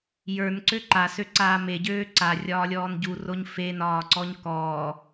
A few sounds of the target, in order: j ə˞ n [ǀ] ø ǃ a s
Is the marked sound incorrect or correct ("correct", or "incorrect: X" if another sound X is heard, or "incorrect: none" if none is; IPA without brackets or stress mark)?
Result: correct